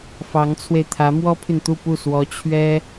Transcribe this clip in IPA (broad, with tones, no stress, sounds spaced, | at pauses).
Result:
f ɑ˧˥ ŋ t͡sʰ w e˧ ɪ̯ t̪ʰ ä˧˥ m w ɔ˥ pʰ y˨ n t̪ u˥˧ p u˥˩ s w ɔ˧˥ t͡ɕʰ ɥ ɛ˥